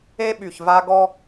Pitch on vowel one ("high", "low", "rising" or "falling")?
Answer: high